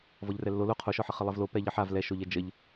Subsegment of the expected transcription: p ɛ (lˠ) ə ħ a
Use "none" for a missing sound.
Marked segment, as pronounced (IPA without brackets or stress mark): ʎ